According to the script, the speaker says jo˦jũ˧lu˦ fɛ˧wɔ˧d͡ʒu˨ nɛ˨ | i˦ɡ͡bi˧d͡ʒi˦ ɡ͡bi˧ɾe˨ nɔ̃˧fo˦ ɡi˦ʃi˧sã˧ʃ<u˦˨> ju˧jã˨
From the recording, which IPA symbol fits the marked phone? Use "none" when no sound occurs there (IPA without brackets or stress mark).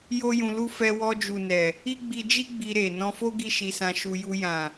u˧